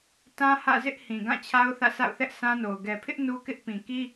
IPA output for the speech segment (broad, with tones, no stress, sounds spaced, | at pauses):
t ã˦ h ä̰˦˨ z ɪ˦ ʔ h ĩ˨ ɡ ã˦˨ t͡ɕʰ a˦ ʊ̯ θ ä̰˦˨ sʰ a̰˦˨ ʊ̯ θ ɛ˦ ʔ sʰ ã˦ n o˨ ʊ̯ ɡ ɛ˨ pʰ ɪ˦ ʔ n u˦ k ɪ˦ ʔ p ĩ˨ k i˦